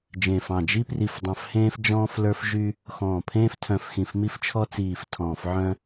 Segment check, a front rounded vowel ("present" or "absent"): present